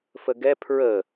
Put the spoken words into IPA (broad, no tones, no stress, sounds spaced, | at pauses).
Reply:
f ə ɡ ɛ pʰ ɹ ə